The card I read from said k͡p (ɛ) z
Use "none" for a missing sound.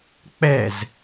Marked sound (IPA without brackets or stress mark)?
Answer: ɛ